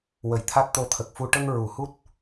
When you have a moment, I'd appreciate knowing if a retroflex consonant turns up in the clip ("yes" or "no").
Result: yes